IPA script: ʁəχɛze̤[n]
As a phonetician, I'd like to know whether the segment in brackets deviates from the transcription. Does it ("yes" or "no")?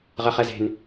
no